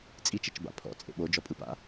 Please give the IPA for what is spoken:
t͡sʼit͡ʃet͡ʃba̰ pʰɔ̰t͡sʼḛ ɓod͡ʒɔpʼɯpa̰

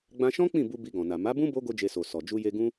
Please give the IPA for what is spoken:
ɡ͡bã˧ʃɔ̃˦ k͡pĩ˦˨bu˧ bi˧ɡɔ̃˨na˨ ma˨˦bũ˦ bo˦ ɡo˦d͡ʒe˧so˨ sɔ˨ d͡ʒu˧je˧ ɡũ˦

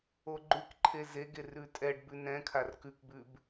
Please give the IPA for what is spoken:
oɡ͡ǃʉkǃʰe zeɡe rʉtʼɛɖbʉ nɛ̃kʰar kʉkbʉb

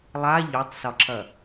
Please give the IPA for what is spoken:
lˠa ʎotˤsɒǁɐ

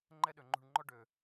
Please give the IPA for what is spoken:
ŋ͡ǃɛ˦ɗø˨ŋ͡ǃṳ˧ɳŋ͡ǃɔ˦ ɖø˨

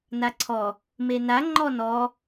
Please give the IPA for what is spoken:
naǀʰɔ | mena ŋ͡ǃɔnɔ

